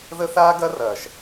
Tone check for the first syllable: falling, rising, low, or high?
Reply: high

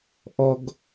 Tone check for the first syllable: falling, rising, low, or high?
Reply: high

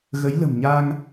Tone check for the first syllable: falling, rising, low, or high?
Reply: rising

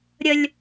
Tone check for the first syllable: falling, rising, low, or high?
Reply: high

